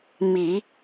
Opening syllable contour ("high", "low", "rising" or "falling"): low